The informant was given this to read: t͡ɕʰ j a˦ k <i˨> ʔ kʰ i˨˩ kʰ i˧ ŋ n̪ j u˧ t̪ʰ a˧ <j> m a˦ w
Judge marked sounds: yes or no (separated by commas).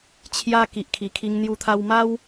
yes, no